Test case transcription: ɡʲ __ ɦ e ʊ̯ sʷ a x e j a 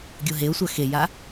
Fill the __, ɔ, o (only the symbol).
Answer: o